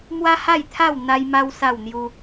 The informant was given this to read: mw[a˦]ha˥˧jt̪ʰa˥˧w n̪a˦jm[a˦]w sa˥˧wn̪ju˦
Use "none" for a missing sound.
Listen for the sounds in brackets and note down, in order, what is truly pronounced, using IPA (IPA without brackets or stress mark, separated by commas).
a˦, a˦